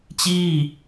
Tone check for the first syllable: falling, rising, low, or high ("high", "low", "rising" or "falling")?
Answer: falling